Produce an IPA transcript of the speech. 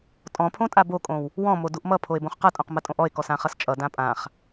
tʼɔ̃pʰõtʼa bokʼõw | wɔ̃moduʔ mʌpʰoe̯bõχ qʌtʼõq mɐtʼõʔɔe̯kɔs ãχʌst͡ʃʼʌ dãpʼãχ

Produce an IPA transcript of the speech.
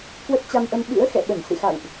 kwə˦˥t̚t͡ɕa˧mʔə˧m ɓɨ̰˧˥ə̯ xɛ̰˧˨ɓə˧˩n sɨ̰˧˨xa̰˧˨wʔ

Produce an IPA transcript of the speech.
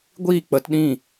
ɡʷiː˦˨k͡pə˨˦tɗĩ˦˨

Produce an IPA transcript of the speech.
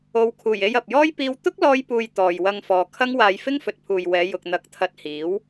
o˨˧wkʰuː˨˩je˧j ɐ˨p̚jɔː˥j piː˥w t̪ʊ˥k̚ lɔː˥jpuː˧j t̪ɔː˨jwɐ˧ŋ fɔː˨ kʰɐ˥ŋwaː˧j fɪ˥ŋfɵ˨t̚pʰuː˨jwɛː˨˧ jʊ˨k̚n̪ɐ˨˥k̚ t̪ʰɐ˧t̚hiː˨˥w

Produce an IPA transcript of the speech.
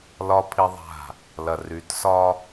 lɒ˦ pʰi˦ðˤa̤˦˨ | lɐ˨ry˨˦tsɒ˦

